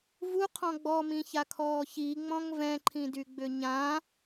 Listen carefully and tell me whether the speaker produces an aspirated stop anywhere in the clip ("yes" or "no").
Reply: yes